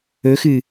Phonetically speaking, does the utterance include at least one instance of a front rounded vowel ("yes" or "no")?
no